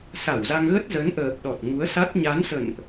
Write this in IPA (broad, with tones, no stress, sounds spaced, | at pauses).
s a˧˩ w z a˧ ŋ ɣ ə˦˥ t̚ z ə˨˦ n ʔ əː˨˩ p̚ ɗ ɔ˨˩ t̚ ŋ u˨˦ ə̯ s a˦˥ t̚ ɲ a˨˦ n s ə̰˧˨ n ʔ